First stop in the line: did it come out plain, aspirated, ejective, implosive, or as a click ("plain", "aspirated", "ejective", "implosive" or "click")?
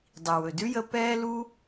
plain